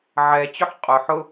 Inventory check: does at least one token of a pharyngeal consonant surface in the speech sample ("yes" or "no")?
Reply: yes